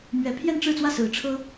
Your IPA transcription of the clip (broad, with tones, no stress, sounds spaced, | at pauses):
m ɥ ɛ˧˥ pʰ j ɛ˥˧ n ʈ͡ʂ ɻ̩˥˧ t͡s w ä˥˩ s ɹ̩˧˥ ʈ͡ʂʰ ɤ˥